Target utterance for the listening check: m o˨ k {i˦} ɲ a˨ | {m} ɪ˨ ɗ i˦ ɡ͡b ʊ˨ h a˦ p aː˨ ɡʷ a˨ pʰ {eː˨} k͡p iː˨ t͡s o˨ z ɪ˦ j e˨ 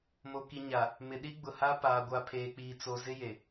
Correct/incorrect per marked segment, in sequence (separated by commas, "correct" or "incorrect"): incorrect, correct, correct